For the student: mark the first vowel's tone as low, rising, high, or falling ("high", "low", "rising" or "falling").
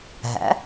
rising